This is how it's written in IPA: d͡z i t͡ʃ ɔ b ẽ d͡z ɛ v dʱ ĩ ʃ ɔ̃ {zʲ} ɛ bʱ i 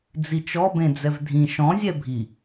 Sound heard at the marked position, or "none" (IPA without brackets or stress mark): zʲ